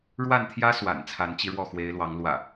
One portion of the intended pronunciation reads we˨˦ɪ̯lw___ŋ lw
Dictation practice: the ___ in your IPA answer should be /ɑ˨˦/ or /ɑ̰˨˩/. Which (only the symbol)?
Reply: ɑ˨˦